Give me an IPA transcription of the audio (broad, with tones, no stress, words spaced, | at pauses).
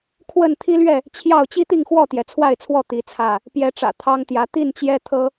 kʰwə˥˨n t̪ʰi˦lɥɛ˥˨ | t͡ɕʰjɑ˥˨ʊ̯ t͡ɕi˦t̪i˥˨ŋxwɔ˥˨t̪jɛ˩ t͡sʰwa˥˨ɪ̯t͡sʰwɔ˥˨ t̪i˨˦ t͡sʰä˥˨ | pjɛ˨˦ʈ͡ʂä̰˨˩ t̪ʰɑ˦ŋt̪jä˨˦ t̪i˥˨nt͡ɕjɛ˦t̪ʰɤ˦